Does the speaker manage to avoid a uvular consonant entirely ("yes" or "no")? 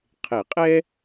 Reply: no